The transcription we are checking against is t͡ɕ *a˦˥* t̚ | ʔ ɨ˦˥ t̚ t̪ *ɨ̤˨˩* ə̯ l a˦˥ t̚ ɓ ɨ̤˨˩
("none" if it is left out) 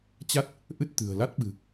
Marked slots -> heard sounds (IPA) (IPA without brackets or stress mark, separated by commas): a˦˥, ɨ̤˨˩